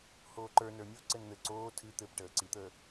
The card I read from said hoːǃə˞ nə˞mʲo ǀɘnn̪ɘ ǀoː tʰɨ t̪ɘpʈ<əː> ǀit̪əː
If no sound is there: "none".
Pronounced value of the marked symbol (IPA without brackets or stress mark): əː